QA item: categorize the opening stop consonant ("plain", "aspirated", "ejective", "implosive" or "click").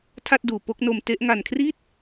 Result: aspirated